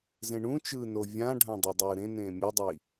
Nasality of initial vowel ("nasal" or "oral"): nasal